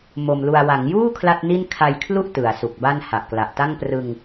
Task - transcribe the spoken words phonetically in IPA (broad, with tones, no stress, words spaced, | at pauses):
mo˧mlu˧a̯ wa˩˦ŋjuː˥˩ kʰla˥˩t̚ni˥˩n kʰa˧jkʰlu˥˩ʔ tɯ˩˦a̯su˨˩k̚ba˥˩n ha˨˩ʔkla˨˩ʔ ta˥˩ŋprɯ˧ŋ